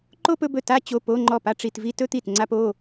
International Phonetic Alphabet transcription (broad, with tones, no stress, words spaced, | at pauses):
ǃo˥pɵ˧˥˧bɵ˥˩ ta˥t͡ɕo˧˥˧po˧˥˧ŋ͡ǃɔ˥˩ pa˥ʈ͡ʂi˧˥˧tvi˥ tɵ˥t̪i˥˩t ŋ͡ǀa˥po˧˥˧